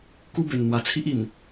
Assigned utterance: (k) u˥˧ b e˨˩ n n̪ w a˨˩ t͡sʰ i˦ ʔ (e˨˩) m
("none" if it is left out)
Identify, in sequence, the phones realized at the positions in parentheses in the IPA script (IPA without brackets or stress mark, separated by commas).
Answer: k, i˨˩